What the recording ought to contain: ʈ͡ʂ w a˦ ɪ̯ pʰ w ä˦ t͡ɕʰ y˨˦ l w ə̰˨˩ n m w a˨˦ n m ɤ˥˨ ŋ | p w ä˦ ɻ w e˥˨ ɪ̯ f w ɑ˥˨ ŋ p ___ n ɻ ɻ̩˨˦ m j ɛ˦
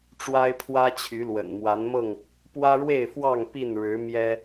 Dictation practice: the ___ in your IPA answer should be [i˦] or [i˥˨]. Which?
i˥˨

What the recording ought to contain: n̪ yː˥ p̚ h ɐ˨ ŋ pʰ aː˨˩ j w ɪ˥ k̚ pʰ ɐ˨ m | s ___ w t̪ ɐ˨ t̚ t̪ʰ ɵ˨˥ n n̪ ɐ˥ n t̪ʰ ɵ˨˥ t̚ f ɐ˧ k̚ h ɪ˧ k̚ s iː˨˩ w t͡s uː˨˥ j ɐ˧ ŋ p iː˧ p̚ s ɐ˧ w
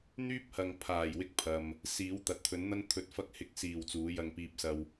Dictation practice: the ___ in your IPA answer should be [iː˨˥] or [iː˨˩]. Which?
iː˨˥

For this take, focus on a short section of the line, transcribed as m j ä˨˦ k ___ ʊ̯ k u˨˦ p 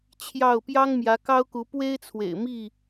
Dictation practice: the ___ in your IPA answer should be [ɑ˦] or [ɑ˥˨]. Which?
ɑ˦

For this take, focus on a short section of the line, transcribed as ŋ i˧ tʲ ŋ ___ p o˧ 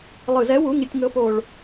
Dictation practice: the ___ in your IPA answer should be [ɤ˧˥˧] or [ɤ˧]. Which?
ɤ˧˥˧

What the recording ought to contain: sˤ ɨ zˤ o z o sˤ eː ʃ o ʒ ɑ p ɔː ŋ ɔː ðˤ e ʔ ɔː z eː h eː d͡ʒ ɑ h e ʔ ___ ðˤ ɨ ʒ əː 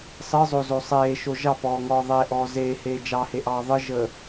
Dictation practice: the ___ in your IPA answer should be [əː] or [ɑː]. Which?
ɑː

